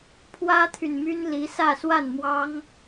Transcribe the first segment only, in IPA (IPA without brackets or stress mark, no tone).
pʰ